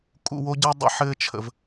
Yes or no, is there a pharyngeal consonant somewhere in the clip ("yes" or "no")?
yes